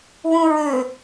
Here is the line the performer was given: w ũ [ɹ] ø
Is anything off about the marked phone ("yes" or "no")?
no